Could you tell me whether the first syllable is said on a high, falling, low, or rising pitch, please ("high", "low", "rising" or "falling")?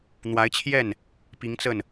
rising